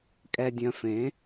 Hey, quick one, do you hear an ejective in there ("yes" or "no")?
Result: yes